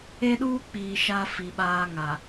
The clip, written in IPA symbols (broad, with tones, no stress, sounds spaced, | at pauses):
e˦ ɗ uː˦ k͡p iː˨ ʃ a˦ f i˨ ɓ aː˦ ŋ a˨